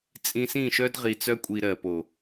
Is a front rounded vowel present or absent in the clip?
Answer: present